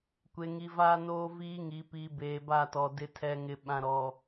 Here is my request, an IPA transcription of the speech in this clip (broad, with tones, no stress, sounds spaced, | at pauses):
kʷ e˨ ŋ i˨ v aː˦ n oː˦ v iː˦ ŋ i˨ p iː˨ b eː˨ b a˦˨ t ɔ˨ d ɪ˨ tʰ ɛ˨ ŋ ɪ˨ ɓ ã˨ ɾ ɔ˨